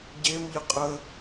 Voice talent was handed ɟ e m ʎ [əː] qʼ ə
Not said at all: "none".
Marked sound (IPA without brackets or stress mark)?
ə